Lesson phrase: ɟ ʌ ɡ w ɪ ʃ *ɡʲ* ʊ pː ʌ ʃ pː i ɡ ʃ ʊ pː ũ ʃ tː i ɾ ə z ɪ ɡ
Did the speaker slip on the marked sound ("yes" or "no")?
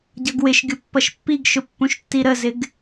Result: no